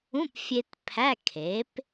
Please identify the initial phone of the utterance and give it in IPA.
ũ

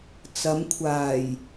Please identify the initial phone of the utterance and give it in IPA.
t͡s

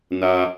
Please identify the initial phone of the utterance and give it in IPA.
n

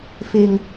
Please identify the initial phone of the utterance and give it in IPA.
f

